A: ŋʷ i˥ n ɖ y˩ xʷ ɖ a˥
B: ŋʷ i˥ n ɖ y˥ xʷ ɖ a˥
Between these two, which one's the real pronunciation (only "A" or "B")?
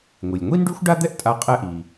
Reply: B